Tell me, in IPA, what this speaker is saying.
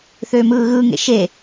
θøːmɯːɣɯːŋḛ ʃe

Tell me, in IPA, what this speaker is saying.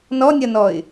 nɔnʲɐnɔɪ̯

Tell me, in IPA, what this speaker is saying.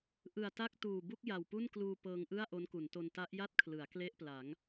ʔɯ˨˩a̯ta˥˩k̚tuː˨˩bu˥˩k̚ ja˨˩wpu˥˩nkluː˧ pɤː˧ŋʔɯ˥˩a̯ ʔo˦˥nku˩˦nto˧n ta˦˥ʔja˥˩t̚ kʰlɯ˩˦a̯kle˥˩ʔpla˩˦ŋ

